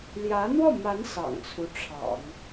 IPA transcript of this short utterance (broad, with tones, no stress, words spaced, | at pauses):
ljä˧˥n̪wɔ˥˩ma˧˥n sɑ̰˨˩ŋt͡sʰu˦ ʈ͡ʂʰɑ̰˨˩˦ŋ